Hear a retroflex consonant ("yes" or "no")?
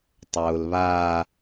no